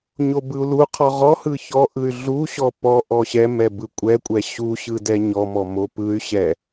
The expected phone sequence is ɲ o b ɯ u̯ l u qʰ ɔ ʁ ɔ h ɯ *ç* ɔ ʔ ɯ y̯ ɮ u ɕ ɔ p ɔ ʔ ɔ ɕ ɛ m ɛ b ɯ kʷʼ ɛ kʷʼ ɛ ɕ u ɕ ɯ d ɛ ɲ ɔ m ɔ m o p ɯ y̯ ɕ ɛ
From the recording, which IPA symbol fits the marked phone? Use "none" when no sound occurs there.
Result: ç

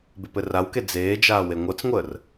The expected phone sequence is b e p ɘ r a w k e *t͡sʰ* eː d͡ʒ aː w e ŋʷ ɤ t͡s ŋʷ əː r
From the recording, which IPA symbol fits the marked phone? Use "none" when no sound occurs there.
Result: d͡z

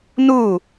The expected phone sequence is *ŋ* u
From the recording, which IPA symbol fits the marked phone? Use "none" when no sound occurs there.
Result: n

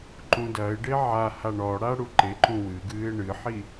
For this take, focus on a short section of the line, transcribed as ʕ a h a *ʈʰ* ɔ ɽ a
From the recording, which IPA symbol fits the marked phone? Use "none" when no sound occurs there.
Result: ɳ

